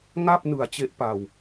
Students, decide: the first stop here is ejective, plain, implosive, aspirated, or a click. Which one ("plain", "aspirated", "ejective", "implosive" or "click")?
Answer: plain